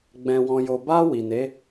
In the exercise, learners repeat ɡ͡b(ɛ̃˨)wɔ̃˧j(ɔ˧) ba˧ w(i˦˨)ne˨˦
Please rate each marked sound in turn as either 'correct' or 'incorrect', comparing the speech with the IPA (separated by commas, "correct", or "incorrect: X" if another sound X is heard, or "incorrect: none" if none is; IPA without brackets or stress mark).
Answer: incorrect: ɛ̃˧, incorrect: o˧, incorrect: i˨